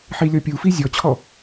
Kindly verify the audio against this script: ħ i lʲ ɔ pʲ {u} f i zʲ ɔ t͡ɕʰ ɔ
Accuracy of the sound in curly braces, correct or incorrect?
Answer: correct